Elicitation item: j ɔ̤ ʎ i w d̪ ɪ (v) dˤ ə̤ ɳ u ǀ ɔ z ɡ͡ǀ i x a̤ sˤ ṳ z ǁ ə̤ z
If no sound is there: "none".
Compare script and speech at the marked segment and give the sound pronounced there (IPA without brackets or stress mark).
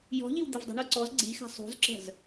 v